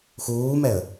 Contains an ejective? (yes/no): no